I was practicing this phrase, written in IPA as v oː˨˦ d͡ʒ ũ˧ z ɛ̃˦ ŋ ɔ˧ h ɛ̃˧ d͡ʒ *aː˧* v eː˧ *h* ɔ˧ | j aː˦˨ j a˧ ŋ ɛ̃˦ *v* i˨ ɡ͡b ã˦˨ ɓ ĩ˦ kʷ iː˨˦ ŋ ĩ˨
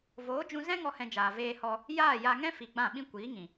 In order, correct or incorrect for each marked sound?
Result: incorrect: aː˨, correct, incorrect: f

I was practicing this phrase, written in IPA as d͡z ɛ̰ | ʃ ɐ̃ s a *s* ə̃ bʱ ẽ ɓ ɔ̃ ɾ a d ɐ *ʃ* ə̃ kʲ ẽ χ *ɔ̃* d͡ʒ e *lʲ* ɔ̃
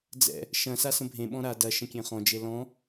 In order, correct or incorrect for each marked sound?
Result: correct, correct, correct, incorrect: l

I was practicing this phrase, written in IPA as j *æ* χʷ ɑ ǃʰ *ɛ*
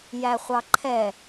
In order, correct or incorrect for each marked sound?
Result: correct, correct

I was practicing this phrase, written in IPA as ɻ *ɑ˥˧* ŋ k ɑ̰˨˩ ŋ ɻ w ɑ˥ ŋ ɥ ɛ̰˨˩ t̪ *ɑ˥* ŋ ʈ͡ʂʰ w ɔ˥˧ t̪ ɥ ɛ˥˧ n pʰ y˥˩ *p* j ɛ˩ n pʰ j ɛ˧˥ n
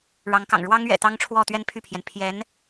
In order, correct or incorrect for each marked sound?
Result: incorrect: ɑ˧˥, correct, incorrect: pʰ

